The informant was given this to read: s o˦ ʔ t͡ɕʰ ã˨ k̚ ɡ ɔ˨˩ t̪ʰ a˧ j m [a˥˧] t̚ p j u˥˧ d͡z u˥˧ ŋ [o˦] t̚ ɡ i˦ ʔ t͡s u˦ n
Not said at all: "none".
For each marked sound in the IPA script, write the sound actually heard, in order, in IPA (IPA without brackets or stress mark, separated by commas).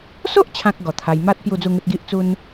a˦, u˦